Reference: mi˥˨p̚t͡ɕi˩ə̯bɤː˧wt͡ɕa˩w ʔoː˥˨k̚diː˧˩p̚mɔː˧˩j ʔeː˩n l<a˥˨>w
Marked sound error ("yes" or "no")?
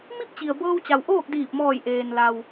yes